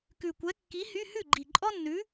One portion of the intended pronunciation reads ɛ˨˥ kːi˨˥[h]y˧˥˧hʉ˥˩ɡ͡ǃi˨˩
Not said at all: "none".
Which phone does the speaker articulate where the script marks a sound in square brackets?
h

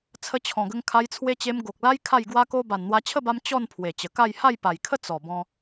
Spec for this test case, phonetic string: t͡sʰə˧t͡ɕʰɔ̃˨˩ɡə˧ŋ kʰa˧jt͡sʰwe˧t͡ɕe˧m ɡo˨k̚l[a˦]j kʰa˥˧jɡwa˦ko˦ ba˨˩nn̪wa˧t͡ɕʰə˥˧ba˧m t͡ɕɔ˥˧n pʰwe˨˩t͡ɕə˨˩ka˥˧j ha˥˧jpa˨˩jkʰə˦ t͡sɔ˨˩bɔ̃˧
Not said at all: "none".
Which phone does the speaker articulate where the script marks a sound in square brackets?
a˦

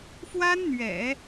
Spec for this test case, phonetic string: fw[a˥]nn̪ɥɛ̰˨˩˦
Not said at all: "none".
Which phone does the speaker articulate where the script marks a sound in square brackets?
a˥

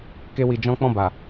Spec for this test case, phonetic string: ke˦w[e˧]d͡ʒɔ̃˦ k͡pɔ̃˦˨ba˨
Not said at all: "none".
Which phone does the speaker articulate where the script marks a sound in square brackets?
i˧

